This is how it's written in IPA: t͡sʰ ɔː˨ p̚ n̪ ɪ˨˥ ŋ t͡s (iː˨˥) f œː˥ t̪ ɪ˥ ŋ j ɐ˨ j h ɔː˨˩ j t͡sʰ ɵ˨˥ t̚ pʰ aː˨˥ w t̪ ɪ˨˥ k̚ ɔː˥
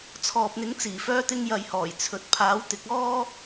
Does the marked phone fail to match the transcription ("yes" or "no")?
yes